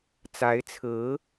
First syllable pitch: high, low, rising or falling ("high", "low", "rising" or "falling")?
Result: rising